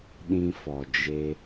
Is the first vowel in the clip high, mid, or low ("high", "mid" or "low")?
high